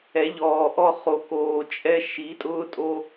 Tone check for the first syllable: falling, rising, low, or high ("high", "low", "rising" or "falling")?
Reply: rising